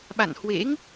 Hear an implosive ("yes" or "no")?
yes